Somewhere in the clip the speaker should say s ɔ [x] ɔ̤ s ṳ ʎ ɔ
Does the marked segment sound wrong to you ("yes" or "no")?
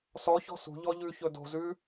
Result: yes